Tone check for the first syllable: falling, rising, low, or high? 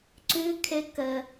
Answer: high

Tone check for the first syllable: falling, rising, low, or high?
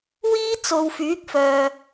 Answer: high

